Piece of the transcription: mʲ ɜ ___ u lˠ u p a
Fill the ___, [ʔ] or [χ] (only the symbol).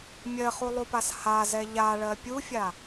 χ